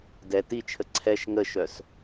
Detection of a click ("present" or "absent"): present